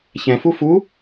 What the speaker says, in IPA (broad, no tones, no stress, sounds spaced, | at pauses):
ç ɛ̃ f u f u